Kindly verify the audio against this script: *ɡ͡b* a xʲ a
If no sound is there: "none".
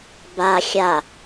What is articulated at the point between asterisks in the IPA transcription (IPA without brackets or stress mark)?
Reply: b